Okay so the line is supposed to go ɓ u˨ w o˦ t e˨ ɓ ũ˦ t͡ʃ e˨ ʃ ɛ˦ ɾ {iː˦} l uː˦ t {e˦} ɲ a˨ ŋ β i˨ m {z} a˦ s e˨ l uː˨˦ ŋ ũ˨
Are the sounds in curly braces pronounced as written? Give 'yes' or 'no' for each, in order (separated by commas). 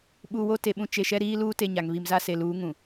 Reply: yes, yes, yes